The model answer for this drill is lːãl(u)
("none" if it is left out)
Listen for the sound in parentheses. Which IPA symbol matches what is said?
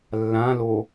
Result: o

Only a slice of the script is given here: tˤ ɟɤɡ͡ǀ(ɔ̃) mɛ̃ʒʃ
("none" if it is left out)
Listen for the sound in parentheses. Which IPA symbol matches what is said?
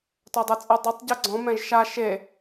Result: ɔ̃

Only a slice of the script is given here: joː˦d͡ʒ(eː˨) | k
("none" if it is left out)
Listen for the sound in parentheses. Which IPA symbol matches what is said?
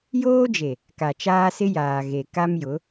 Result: e˨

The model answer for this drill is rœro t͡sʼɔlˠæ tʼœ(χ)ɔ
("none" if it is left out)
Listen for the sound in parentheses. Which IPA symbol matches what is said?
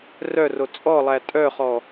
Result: χ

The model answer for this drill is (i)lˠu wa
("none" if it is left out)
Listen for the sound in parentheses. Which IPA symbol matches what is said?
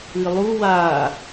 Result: ɨ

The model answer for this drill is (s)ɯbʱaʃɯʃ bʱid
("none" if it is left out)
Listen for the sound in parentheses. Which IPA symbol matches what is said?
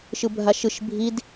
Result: ʃ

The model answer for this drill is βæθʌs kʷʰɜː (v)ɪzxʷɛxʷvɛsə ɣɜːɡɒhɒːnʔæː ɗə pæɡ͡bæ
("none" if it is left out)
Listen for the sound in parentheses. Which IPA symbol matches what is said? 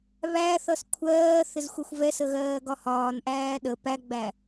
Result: θ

